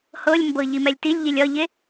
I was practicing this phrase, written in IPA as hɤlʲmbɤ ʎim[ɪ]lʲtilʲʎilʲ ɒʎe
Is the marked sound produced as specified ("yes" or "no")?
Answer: no